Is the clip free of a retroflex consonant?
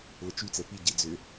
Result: yes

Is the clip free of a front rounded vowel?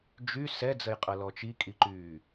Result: no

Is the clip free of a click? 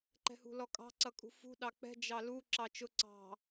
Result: no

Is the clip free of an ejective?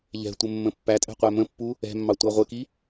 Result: no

